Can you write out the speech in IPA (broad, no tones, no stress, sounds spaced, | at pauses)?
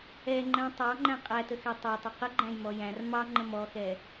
ɛ ŋ͡ǃ æ̃ tˤ ɑ ŋ͡ǃ æ̃ qʼ æ t ə x ɛ tˤ æ tˤ ʊ q ə ɡ͡ǃ æ̃ j m ɔ j æ̃ r m ɑ ŋ͡ǃ ə̃ m ɔ x ɛ